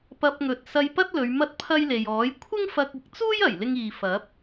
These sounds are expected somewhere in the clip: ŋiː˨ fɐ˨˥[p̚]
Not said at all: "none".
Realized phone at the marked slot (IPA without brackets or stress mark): p̚